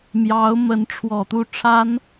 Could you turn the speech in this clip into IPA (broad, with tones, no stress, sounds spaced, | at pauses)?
m j ɑ˧˥ ʊ̯ m ə˧˥ n ʈ͡ʂʰ w ɔ˨˩ t̪ u˥˩ ʈ͡ʂʰ a˥ n